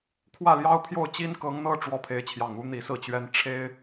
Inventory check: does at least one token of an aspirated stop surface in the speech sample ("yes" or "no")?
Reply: yes